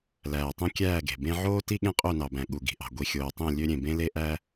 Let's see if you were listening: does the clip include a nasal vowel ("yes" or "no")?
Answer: yes